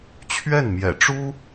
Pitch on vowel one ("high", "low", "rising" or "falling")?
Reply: falling